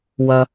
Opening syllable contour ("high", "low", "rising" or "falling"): low